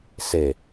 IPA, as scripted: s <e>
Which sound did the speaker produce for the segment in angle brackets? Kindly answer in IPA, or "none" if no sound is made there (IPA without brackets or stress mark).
e